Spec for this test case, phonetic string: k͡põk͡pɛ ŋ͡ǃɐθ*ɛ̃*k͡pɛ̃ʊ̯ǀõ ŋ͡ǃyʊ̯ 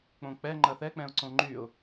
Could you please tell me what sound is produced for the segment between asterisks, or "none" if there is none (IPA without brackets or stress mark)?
ɛ